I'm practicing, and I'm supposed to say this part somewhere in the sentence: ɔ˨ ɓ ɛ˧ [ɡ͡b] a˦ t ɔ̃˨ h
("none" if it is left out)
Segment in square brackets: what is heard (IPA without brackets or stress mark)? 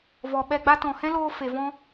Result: ɡ͡b